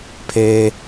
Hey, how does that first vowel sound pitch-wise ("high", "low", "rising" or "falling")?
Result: high